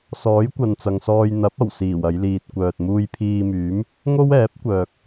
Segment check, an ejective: absent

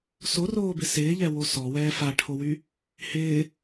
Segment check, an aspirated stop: present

